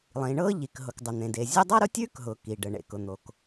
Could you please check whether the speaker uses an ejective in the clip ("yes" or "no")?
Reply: no